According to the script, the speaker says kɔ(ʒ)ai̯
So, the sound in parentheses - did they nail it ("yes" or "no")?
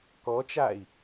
no